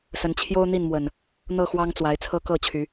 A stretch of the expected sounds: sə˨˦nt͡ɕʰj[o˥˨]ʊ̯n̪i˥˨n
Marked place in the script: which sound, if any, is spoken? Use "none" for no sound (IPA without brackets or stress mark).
o˦